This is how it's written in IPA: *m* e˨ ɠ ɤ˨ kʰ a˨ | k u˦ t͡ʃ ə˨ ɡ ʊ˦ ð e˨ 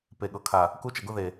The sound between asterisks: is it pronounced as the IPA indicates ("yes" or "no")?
no